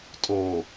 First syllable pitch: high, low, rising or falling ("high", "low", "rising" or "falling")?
low